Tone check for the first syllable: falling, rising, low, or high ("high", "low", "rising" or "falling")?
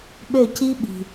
falling